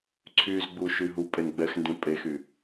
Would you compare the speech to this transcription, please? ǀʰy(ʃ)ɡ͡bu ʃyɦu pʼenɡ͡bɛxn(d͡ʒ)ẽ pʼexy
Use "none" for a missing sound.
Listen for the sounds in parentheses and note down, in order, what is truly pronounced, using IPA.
z, d

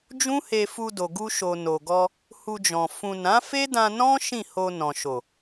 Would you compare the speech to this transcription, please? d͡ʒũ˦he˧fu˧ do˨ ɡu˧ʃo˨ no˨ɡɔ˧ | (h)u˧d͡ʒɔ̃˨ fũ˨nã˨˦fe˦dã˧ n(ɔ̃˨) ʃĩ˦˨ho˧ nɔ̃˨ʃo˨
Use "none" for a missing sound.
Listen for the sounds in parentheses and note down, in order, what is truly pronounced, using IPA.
h, ɔ̃˦

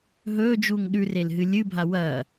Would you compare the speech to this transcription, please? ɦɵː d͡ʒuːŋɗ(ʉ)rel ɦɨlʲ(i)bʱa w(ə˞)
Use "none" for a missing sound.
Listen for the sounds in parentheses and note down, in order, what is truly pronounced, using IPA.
ʉ, ɨ, ɐ

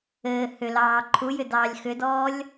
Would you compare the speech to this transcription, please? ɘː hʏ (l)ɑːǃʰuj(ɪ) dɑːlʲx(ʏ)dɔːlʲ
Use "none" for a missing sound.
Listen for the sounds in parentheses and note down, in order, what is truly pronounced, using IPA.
l, ʏ, ʏ

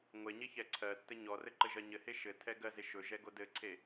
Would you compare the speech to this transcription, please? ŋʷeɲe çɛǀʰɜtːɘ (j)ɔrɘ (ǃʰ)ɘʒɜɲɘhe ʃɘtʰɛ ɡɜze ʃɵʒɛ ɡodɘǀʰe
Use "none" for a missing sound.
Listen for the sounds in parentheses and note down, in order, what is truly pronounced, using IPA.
ɲ, ǃ

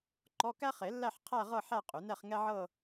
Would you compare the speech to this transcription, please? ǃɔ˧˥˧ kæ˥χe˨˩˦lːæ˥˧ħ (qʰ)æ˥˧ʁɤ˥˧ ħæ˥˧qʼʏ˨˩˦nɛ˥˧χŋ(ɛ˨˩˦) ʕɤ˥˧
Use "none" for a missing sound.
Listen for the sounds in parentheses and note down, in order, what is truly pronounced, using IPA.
qʰ, ɛ˥

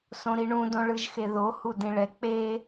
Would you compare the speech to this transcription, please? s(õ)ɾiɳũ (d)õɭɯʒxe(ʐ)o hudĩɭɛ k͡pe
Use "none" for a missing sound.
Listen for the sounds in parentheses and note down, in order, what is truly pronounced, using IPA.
õ, d, ð

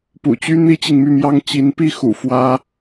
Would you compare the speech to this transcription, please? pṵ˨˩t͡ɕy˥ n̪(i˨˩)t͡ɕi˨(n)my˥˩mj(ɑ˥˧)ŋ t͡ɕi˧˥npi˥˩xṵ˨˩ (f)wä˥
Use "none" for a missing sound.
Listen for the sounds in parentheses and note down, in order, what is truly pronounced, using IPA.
i˥, ŋ, ɑ˥, f

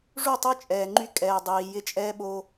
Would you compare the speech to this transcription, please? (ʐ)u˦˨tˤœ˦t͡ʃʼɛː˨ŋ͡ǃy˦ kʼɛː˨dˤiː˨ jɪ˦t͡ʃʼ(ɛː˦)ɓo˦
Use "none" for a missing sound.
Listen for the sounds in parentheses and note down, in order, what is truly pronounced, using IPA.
ʐ, ɛː˦

